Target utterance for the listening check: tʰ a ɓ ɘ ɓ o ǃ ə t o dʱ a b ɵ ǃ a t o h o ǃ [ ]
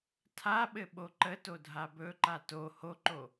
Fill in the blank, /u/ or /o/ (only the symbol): o